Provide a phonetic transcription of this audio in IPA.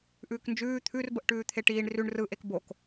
ʔ ʉː k n d͡ʒ ʉː t̪ʰ ʉ r b ə ʔ ʈ ʉː t̪ʰ e ʈ iː ɳ r ʉ ɳ r ɯ ʔ e k b o k

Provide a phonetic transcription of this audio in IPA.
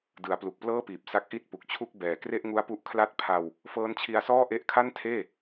d ɯ˩˦ a̯ p l u˨˩ k̚ p l ɤː˥˩ p iː˨˩ p̚ s a˦˥ k̚ ʔ i˥˩ t̚ p u˨˩ k̚ t͡ɕʰ u˥˩ k̚ b ɛː˨˩ k r e˥˩ ʔ ŋ u˦˥ a̯ p u˦˥ ʔ kʰ l a˥˩ t̚ pʰ a˧ w | f ɤː˦˥ n t͡ɕʰ i˧ a̯ s ɔː˥˩ ʔ e˦˥ ʔ kʰ a˥˩ n tʰ eː˥˩

